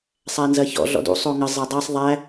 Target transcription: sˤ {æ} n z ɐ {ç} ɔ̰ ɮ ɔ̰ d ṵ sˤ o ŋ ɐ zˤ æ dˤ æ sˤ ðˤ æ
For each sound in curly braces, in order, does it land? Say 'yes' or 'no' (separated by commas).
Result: yes, yes